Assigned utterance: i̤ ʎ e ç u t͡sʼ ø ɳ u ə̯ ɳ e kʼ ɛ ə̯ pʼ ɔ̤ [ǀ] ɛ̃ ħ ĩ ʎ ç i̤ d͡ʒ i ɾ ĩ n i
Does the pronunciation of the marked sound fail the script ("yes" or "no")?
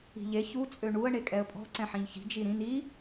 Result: no